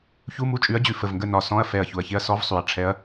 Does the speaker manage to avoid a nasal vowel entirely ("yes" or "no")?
no